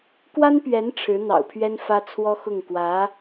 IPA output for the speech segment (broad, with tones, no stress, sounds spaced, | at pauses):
k w a˥ n p ɥ ɛ˧˥ n ʈ͡ʂʰ ɻ̩˧˥ n̪ ɑ̰˨˩ ʊ̯ pʰ ɥ ɛ˥ n f ä˥ t͡sʰ w ɔ˥ x ʊ˥˩ ŋ k w ä˧˥